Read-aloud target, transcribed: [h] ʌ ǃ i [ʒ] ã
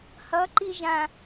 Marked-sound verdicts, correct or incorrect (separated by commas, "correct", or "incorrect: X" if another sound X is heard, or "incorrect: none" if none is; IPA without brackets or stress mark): correct, correct